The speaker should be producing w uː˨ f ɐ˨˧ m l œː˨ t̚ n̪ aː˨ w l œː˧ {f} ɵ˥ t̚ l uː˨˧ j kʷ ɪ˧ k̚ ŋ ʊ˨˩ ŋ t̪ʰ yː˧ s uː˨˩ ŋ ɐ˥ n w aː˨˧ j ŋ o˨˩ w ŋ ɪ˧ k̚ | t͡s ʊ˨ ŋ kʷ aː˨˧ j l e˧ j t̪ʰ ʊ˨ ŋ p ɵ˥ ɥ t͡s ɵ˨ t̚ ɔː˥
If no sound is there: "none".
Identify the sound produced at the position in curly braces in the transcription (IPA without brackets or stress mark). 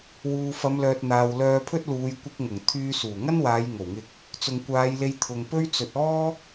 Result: pʰ